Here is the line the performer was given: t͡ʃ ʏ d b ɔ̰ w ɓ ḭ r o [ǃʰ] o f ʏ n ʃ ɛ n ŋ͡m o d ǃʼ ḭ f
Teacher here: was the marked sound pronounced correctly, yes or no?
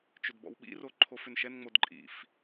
yes